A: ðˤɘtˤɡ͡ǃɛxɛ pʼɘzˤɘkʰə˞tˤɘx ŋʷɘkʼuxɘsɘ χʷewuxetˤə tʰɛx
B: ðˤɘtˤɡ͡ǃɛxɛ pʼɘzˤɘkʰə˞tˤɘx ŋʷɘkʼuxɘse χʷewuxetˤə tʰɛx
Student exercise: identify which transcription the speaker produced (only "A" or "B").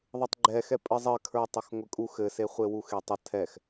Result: B